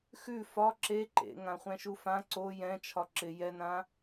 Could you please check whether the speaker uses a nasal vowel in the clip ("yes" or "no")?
yes